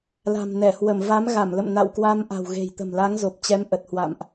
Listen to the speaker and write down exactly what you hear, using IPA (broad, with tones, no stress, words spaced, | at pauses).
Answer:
la̤˨˩mnɛ˧˩hwə˧˩m va˨˦mɣa˧˩mlə̰˧˨m na̰˧˨wkwa˧m ʔa̤˨˩wɣe̤˨˩jt̪ə̤˨˩m la˨˦ŋzo˨˩p̚t͡ɕɛ˨˦m ʔə˨˩t̚hwa̰˧˨mʔ